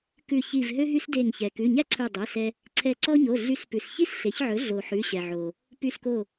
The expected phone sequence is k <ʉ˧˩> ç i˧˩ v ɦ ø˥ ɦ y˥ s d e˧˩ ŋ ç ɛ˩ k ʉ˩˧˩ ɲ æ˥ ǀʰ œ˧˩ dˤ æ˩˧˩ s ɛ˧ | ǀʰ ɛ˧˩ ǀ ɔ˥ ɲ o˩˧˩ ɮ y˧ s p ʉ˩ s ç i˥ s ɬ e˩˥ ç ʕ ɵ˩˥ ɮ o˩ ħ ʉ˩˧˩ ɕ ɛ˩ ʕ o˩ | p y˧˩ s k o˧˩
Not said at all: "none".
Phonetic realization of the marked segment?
ʉ˧˩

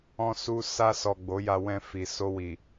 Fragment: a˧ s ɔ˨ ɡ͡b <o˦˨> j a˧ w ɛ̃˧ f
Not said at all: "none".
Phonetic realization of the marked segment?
o˨˦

